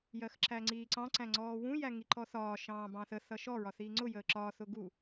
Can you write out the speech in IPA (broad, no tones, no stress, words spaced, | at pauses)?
jɜxǁæŋ͡ǀiːǀɑ̃ ǀæ̃ŋ͡ǀɔːwũ jæŋiǃɔθɒː ʃɑ̃ːbɑ̃θə θʌʃɔ ɹɒθiːŋ͡ǀʊ jəːǁɒː θʊɡu